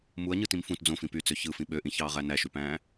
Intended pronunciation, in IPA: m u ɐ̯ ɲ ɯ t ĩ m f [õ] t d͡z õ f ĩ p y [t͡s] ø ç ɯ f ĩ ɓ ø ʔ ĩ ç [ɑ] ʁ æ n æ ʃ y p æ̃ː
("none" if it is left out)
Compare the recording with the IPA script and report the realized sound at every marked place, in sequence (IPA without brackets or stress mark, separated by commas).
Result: ũ, t͡s, ɑː